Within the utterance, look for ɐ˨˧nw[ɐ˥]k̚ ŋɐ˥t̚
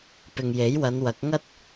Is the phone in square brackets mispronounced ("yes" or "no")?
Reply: yes